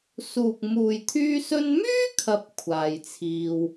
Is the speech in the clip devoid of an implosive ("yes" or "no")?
yes